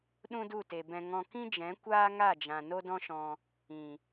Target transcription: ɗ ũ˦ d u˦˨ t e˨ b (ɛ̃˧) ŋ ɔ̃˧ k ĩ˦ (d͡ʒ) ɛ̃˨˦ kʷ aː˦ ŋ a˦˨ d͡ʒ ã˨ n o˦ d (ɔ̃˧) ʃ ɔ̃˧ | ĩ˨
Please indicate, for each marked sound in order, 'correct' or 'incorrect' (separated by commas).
correct, correct, incorrect